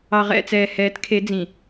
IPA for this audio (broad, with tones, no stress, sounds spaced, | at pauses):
ɑ˨ ʁ ɛ̰˦˨ t͡s ɛː˨ h ɛː˨˦ t kʰ e˨˦ d͡z ĩ˨